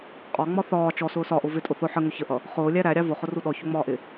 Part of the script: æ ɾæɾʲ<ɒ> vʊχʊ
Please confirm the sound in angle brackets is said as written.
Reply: no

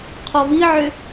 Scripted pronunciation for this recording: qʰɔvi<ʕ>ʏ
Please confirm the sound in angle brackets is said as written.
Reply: yes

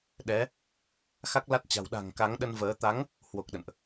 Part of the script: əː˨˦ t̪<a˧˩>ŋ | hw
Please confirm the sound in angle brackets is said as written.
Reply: no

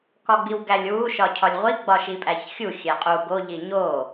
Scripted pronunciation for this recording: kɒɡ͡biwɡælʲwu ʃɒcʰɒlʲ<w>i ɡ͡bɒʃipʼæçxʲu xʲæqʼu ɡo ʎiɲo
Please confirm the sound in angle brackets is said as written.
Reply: no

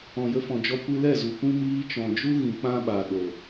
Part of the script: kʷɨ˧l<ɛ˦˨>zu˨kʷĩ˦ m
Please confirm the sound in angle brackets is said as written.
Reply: yes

